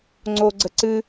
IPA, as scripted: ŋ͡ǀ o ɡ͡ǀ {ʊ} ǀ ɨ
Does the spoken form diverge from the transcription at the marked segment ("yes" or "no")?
yes